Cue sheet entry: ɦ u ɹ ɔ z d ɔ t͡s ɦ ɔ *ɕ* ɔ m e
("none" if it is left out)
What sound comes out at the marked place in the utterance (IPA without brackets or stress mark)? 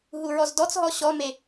ɕ